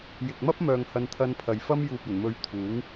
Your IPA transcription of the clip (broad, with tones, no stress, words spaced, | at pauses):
jɪ˨k̚mɐ˥p̚ mœː˨ŋ hɐ˧nt̪ʰɐ˧npʰɐ˨jfɐ˥m juː˨p̚ɐ˨˩nmɵ˨˧ɥ t̪ʰuː˨˥ŋ